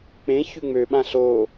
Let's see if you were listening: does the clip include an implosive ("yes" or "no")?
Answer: yes